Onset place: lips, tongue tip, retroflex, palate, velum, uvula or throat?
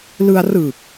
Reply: tongue tip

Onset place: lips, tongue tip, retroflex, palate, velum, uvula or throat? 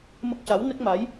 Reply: lips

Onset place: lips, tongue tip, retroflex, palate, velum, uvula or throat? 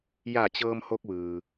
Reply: palate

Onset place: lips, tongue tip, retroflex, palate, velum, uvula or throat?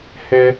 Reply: throat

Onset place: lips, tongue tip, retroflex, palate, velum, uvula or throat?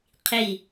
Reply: uvula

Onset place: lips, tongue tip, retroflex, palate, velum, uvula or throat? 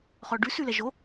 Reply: uvula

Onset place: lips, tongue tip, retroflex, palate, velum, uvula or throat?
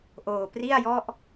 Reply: throat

